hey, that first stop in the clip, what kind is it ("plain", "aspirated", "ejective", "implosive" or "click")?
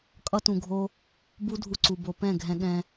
ejective